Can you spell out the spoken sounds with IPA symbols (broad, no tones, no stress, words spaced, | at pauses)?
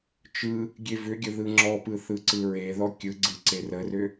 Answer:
t͡ʃɯ | ɡʲevʏɡʲə ðɯŋ͡ǁɔpɯ θɯǀɯɹeðɔ kʲɯɡ͡ǀɯ ǀerərʏ